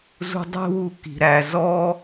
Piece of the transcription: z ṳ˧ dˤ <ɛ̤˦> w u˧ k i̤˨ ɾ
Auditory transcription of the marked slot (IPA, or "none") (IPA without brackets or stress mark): ɛ̤˦